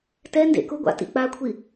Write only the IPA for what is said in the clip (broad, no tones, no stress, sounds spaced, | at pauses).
t ɛ n d ḛ k ʊ ɡʷ a̰ t ḭ k͡p a kʷʰ i